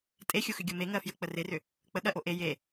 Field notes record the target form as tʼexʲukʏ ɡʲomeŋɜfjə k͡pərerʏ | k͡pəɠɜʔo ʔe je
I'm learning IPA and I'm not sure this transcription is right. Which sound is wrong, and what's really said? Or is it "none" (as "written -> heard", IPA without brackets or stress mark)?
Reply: k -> x